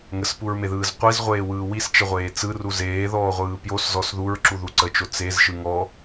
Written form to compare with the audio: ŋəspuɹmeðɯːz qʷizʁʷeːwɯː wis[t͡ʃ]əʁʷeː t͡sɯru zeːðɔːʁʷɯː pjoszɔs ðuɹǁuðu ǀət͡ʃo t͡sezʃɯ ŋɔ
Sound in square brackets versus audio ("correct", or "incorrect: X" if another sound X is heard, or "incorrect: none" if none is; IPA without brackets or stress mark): correct